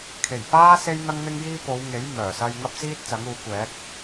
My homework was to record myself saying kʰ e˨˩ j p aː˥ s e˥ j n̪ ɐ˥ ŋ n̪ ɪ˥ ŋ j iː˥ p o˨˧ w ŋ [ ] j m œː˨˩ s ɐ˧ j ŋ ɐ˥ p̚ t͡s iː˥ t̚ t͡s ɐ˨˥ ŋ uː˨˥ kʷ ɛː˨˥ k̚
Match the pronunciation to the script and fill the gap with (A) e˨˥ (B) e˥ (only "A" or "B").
A